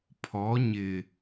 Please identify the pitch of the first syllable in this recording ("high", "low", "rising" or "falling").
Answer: rising